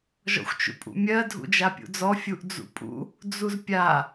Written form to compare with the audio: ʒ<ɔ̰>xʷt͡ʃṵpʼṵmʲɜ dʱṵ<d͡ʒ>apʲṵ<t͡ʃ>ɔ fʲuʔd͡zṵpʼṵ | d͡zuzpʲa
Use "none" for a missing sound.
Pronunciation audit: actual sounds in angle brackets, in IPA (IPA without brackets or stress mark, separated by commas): ɔ̰, d͡ʒ, d͡z